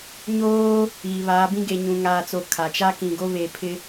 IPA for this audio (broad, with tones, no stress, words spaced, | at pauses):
ɲoː˦ | iː˨βaː˨˦ bĩ˦ɡe˨ɲũ˨ ŋaː˨t͡so˨ kʰa˨ t͡ʃa˦kĩ˨ ɡo˦βe˨pʰɪ˦